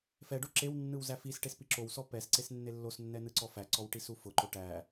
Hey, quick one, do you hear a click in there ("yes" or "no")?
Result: yes